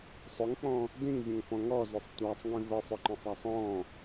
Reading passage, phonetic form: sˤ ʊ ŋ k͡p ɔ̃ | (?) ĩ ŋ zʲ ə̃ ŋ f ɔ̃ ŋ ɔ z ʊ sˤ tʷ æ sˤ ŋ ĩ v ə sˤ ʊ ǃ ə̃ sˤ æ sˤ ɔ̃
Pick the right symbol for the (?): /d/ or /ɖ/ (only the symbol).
d